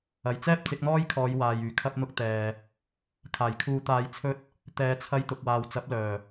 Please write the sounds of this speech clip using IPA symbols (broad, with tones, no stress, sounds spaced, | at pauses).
ɐ˨˩ j t͡s ɛː˥ p̚ t͡s ɪ˨˥ k̚ n̪ ɔː˥ j kʰ ɔː˨˧ j w aː˨ j yː˨˩ kʰ ɐ˥ p̚ n̪ ʊ˥ k̚ t̪ ɛː˨ | kʰ aː˨˩ j kʰ uː˧ t̪ aː˧ j t͡sʰ ɵ˥ t̚ | t̪ ɛː˨˧ t͡sʰ ɐ˧ j t̪ ʊ˨ k̚ w aː˨ w t͡s ɐ˨˥ p̚ l œː˨˩